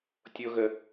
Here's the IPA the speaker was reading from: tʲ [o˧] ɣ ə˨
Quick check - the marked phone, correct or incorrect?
correct